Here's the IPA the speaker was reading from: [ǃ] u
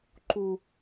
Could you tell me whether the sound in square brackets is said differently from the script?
no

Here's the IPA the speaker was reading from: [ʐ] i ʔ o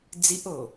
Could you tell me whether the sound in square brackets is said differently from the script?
yes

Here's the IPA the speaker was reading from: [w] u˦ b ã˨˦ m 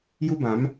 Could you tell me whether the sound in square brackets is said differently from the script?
yes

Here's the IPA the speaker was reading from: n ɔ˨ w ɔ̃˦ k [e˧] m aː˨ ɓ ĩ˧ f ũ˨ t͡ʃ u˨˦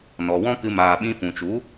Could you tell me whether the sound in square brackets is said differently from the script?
yes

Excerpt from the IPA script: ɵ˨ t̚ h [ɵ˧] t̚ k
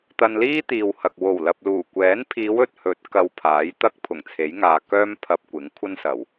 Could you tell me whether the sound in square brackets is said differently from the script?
yes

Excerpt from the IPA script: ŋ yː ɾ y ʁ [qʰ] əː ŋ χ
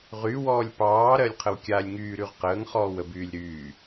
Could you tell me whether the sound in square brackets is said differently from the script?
yes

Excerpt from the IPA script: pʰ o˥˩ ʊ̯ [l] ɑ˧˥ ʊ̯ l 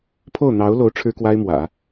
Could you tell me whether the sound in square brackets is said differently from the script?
yes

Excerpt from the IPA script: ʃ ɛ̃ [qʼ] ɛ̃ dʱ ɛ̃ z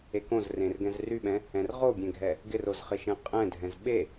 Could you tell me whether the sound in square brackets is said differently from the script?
no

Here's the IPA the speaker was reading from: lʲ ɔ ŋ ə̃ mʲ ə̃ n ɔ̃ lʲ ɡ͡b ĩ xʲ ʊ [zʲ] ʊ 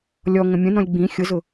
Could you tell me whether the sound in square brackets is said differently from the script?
yes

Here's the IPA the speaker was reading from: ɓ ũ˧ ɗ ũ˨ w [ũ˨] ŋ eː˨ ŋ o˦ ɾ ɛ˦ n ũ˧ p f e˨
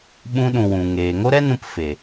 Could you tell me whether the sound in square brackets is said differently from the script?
no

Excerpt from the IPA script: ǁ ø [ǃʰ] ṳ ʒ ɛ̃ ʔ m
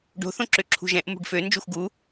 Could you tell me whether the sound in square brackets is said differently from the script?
yes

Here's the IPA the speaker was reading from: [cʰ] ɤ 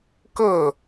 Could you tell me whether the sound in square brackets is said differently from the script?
yes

